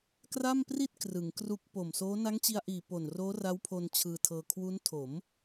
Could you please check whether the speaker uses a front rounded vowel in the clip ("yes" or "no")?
no